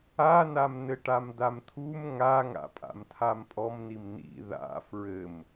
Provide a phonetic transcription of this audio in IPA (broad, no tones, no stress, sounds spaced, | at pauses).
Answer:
a n a m n ɘ ʈ a m d a m t̪ʰ u m ŋ a ŋ a̰ pʼ a̰ m tʰ a m pʼ ɔ m n i m n ḭ ð a̰ f ɹ ɘ m